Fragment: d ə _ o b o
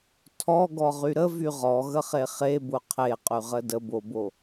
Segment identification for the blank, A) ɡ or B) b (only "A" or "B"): B